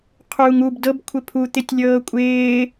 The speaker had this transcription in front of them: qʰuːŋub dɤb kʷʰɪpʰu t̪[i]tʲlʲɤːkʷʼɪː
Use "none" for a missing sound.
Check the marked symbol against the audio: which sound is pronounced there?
ɪ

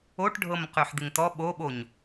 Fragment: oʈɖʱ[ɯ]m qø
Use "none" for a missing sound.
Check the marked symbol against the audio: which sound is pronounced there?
ɤ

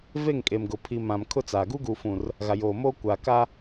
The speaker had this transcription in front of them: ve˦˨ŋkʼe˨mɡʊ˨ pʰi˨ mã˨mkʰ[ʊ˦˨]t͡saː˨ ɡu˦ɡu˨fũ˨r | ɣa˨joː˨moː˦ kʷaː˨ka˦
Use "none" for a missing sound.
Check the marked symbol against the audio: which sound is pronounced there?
ʊ˦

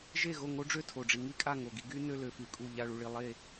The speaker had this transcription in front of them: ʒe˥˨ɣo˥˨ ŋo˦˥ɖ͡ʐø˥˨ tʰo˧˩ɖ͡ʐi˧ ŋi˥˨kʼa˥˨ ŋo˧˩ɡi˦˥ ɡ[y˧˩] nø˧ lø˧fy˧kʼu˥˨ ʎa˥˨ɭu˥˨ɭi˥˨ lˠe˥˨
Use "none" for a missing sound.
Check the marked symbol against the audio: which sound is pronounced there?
y˦˥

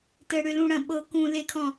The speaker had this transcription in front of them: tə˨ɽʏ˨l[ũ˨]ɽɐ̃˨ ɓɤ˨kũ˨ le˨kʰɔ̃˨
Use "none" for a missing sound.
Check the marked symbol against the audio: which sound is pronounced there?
ũ˨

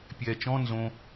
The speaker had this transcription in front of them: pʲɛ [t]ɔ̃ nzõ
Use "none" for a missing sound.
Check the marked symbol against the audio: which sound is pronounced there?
t͡ʃ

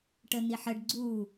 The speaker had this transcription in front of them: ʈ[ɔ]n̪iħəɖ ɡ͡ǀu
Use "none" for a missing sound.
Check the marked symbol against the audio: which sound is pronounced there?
ə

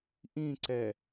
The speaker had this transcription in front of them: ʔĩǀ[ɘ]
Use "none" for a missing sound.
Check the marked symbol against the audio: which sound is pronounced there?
ɛ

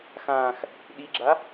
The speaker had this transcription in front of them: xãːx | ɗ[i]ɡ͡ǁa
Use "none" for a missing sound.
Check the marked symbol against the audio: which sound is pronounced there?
i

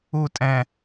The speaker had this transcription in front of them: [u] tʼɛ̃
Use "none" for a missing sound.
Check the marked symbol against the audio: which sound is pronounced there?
u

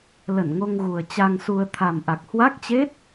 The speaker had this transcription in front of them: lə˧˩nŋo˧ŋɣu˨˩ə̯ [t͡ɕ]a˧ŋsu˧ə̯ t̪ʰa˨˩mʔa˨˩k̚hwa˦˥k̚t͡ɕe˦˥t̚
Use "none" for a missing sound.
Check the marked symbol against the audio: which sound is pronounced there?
t͡ɕ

